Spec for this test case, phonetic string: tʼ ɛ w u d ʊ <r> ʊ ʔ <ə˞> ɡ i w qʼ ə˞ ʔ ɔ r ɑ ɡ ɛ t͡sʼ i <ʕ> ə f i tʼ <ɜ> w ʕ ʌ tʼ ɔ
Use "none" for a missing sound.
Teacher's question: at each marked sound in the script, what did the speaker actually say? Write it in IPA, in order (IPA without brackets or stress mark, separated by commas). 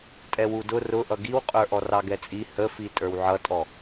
r, ʌ, h, ə˞